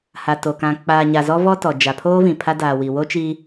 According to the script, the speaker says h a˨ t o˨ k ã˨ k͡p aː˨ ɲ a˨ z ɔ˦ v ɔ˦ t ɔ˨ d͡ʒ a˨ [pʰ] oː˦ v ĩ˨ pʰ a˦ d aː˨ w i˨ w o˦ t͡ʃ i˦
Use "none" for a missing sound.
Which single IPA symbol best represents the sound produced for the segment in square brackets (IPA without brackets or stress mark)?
pʰ